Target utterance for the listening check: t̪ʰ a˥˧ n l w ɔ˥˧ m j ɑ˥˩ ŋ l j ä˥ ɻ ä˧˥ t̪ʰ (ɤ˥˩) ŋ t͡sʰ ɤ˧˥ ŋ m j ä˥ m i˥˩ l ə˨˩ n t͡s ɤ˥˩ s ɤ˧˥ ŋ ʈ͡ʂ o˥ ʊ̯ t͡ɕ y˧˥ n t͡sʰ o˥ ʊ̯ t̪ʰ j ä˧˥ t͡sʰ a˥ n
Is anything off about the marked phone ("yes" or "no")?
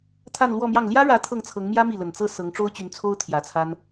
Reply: no